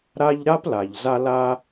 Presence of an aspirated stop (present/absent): absent